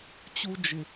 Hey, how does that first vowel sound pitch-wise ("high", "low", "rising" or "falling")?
high